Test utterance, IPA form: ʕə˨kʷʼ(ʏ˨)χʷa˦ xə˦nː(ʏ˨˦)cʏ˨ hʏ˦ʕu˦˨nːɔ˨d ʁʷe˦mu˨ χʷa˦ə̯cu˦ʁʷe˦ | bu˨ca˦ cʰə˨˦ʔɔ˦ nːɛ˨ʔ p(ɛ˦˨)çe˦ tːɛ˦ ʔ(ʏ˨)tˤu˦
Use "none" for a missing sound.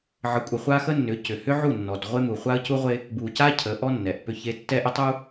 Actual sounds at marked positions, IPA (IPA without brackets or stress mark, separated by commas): ə˨, ʏ˨˦, ʏ˦˨, ʏ˦